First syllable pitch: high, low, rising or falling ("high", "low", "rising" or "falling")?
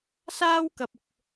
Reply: high